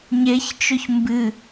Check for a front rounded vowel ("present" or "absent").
absent